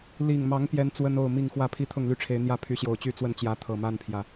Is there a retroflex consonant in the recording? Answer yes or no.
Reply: yes